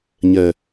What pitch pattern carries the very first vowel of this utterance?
low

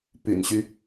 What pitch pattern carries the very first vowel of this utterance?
low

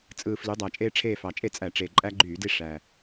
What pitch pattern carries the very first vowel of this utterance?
low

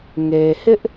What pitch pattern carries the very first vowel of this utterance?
low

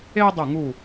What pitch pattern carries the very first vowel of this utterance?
high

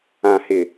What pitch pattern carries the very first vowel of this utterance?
low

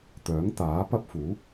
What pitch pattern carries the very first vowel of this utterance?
rising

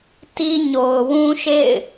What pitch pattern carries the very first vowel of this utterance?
high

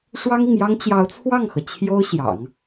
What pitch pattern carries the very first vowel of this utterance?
high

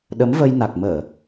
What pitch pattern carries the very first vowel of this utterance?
rising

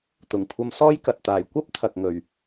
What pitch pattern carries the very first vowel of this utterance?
low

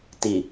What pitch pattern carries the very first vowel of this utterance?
low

